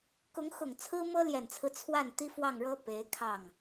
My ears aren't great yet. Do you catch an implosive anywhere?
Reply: no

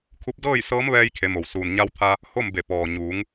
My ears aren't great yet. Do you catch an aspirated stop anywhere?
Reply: yes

